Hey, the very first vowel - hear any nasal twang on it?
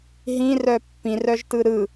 yes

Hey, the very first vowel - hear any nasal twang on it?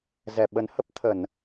no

